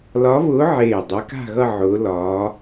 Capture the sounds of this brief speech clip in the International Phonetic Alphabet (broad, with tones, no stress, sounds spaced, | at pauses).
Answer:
l ɒ˧˥ β ʊː˧˥ ʕ eː˧˩ dˤ e˧˥ k a̤˥˧ ɣ ʌ˥˧ ʕ ʊː˧˥ l ɒː˧˥